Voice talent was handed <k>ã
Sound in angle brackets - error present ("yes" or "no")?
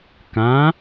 no